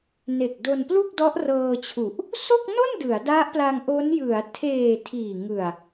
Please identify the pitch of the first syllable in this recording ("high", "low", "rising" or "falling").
low